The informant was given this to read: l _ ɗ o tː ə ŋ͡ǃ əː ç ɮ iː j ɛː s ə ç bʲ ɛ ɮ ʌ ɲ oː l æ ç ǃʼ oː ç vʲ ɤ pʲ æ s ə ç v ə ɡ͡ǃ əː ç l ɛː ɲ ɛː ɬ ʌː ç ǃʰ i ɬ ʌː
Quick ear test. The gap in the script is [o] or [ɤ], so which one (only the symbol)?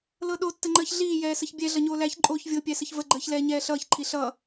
ɤ